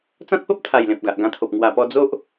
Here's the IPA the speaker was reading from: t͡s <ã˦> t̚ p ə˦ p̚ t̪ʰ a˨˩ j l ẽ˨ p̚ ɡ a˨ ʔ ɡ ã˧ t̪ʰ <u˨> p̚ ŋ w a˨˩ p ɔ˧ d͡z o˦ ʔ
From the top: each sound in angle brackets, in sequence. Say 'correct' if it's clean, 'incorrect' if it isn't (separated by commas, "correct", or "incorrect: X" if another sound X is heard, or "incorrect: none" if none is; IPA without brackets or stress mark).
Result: correct, incorrect: o˨